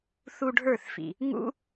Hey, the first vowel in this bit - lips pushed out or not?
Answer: yes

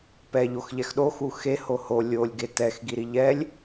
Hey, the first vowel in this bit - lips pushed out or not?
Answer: no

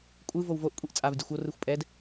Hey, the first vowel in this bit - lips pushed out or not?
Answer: no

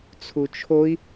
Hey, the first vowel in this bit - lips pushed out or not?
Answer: yes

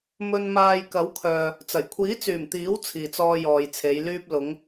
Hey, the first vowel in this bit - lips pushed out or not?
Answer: yes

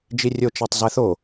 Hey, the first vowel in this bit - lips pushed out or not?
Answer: no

